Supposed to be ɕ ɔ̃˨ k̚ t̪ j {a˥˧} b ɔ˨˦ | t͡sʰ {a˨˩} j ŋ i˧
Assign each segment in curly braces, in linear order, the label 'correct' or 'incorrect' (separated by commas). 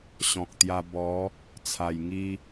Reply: incorrect, correct